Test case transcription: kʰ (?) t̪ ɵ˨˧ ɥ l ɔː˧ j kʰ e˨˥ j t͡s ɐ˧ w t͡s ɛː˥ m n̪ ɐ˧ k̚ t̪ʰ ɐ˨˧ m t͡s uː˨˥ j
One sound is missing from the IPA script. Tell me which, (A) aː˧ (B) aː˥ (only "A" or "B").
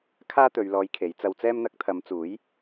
B